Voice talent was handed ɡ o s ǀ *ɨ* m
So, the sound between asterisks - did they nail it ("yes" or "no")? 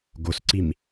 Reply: no